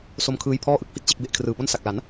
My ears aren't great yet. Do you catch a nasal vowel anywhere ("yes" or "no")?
no